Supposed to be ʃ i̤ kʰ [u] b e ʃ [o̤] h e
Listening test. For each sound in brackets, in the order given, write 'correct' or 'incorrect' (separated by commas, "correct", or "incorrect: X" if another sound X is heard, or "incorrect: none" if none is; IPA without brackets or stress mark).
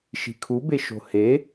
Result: correct, correct